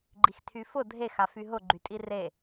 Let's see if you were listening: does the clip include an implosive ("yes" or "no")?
no